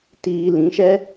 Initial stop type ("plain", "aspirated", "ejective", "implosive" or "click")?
plain